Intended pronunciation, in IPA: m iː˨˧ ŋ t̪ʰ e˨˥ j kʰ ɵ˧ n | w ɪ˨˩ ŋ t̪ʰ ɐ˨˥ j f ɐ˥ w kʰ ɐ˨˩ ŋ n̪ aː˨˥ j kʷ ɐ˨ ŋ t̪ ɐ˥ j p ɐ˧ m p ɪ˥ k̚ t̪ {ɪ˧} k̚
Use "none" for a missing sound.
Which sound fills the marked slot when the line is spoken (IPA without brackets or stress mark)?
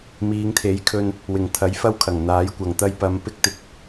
ɪ˧